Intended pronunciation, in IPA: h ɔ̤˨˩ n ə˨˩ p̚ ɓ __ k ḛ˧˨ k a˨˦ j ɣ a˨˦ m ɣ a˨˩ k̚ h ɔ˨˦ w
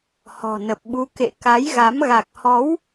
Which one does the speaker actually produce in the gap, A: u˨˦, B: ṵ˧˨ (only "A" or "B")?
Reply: A